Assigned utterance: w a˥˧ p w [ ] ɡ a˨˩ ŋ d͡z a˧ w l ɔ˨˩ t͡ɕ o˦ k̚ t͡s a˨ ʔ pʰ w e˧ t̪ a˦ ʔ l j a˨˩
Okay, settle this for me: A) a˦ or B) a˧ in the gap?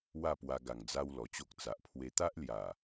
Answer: B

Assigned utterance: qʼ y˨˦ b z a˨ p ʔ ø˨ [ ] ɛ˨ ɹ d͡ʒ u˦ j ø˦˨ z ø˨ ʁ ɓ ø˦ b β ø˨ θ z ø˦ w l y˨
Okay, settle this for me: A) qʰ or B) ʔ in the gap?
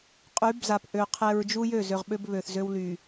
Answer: A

